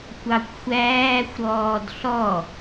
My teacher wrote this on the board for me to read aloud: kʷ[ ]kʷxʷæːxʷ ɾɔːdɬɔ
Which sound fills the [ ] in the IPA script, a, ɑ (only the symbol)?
ɑ